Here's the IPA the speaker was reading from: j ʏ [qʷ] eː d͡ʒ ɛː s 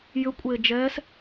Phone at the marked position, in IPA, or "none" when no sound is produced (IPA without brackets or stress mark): kʷʼ